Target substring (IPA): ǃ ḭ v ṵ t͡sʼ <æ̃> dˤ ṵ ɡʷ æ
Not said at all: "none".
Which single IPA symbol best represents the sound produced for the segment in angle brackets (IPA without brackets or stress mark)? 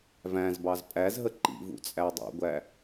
æ